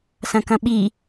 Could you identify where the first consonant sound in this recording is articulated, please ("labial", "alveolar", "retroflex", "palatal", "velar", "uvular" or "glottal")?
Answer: alveolar